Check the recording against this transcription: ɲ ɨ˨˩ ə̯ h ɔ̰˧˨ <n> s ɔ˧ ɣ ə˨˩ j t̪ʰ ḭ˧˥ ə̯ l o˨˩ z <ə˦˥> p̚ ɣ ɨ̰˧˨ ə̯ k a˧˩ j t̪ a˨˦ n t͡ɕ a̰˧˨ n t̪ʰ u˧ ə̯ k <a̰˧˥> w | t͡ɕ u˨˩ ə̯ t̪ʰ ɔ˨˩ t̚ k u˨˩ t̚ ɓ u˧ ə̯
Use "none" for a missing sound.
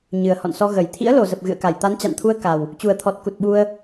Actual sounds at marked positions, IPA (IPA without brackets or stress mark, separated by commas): n, ə˨˩, a˨˩